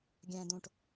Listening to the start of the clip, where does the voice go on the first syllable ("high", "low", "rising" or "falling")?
low